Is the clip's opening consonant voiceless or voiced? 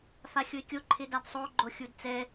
voiceless